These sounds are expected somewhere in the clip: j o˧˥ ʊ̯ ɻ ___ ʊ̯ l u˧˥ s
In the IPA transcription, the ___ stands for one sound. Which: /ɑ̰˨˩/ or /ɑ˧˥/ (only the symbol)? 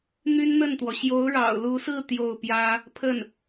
ɑ̰˨˩